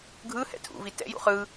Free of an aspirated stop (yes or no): no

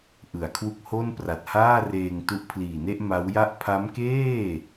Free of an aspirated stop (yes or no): no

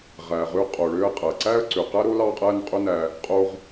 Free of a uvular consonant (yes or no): no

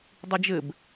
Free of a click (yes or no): yes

